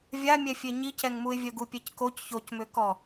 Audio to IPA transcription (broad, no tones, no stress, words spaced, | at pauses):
vʲamʲɛfʲe ɲicɛŋmuɪ̯vʲœ ɡupʲɛckoc çocmøkɔ